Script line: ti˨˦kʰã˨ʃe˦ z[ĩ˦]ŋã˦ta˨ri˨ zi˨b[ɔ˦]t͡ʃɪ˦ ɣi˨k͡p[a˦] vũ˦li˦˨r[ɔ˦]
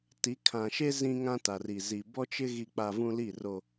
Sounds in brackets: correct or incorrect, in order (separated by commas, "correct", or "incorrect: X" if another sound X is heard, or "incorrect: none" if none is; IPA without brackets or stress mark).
correct, correct, incorrect: a˨, incorrect: o˦